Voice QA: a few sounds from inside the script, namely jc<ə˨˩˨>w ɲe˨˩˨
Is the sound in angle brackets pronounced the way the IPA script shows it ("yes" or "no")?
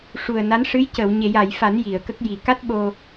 yes